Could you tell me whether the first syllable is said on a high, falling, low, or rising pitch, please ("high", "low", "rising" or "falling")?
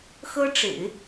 high